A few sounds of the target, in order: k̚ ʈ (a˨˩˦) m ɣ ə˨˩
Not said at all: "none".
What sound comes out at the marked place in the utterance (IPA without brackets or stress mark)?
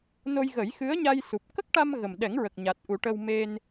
a˧